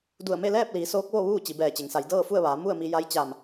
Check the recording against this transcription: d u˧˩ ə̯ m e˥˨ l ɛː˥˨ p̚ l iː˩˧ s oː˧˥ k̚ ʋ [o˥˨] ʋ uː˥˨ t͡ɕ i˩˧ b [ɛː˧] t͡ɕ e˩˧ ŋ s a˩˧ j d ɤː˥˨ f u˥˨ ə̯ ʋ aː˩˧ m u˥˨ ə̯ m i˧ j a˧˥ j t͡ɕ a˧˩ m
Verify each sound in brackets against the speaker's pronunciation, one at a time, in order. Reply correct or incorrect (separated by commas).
correct, incorrect